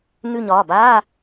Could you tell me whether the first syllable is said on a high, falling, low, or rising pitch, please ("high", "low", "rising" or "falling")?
falling